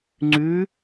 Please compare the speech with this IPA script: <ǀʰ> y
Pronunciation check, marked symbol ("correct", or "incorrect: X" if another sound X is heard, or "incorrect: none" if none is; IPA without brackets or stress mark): incorrect: ŋ͡ǀ